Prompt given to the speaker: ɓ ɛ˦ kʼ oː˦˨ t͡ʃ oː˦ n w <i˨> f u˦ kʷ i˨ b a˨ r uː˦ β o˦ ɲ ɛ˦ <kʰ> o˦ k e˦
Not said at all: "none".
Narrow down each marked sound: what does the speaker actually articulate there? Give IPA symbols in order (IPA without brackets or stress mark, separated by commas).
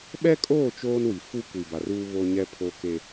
i˨, pʰ